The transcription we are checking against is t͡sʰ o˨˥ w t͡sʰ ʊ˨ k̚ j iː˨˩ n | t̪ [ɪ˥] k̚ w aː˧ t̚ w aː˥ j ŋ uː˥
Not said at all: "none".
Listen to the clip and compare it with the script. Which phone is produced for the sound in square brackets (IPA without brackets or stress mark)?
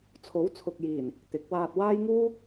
ɪ˨˥